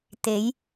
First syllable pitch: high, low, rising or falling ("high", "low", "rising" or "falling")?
rising